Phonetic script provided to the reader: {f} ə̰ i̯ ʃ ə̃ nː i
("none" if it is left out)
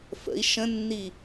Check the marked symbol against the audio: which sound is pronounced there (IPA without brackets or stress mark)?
f